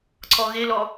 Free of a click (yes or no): no